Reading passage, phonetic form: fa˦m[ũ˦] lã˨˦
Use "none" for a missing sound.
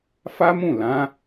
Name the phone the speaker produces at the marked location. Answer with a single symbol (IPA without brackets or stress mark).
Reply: ũ˦˨